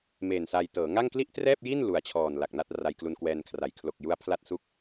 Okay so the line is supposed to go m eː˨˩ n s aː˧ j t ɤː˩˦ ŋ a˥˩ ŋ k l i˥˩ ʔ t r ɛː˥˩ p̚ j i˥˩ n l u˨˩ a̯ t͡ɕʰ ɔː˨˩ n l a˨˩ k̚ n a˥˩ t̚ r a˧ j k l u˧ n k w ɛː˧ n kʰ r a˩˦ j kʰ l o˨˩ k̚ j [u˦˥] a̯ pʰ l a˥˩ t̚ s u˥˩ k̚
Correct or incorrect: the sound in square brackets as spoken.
correct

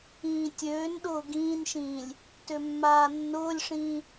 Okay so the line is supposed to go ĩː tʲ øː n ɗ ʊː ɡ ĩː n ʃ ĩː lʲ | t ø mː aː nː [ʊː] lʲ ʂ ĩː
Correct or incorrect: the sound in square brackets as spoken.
correct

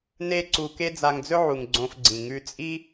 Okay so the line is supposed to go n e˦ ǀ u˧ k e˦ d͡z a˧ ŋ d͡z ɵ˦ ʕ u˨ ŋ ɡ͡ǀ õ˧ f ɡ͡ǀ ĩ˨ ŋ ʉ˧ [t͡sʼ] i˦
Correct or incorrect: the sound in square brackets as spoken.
correct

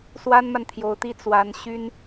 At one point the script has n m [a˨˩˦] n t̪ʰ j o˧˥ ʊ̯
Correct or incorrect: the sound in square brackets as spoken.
incorrect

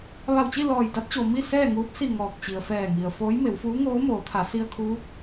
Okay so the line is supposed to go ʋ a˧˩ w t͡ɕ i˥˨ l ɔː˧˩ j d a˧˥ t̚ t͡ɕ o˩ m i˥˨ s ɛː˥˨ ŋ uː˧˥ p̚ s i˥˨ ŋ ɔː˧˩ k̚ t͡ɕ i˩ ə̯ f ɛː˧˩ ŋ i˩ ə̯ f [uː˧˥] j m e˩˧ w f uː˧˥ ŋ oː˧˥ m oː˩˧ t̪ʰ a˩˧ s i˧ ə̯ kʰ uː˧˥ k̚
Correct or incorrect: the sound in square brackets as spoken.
incorrect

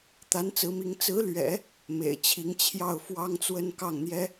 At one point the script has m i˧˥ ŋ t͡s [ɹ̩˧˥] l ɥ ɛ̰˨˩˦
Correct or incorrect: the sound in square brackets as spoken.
correct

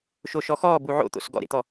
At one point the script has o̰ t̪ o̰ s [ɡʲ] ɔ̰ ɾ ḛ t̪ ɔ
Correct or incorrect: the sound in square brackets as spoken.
incorrect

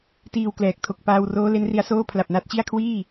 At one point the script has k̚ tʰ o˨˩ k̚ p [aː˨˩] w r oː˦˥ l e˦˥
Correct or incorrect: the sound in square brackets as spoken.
incorrect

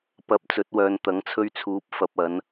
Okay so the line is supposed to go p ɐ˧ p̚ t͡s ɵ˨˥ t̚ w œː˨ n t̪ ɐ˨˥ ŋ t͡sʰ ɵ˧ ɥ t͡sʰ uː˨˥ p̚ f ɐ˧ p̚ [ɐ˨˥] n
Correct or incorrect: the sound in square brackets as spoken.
correct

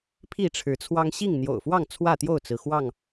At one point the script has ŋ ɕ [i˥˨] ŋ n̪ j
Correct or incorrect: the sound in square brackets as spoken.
correct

